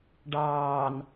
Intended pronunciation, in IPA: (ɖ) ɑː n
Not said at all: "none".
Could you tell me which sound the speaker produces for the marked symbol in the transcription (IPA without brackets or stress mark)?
ɖ